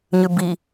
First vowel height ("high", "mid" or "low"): high